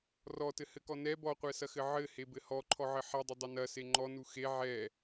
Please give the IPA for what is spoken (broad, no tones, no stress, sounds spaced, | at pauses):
r ɔ t ɘ h ɘ k ɔ n ɛ b ɔ qʷ ɛ s ɐ x ɘ ʕ ɘ h e b ɘ h ɔ ǃʰ ɔ ʕ ɘ ħ ɛ dˤ ɘ dˤ ɐ n ɐ s e ŋ͡ǃ ɔ n u x e ʕ ɛ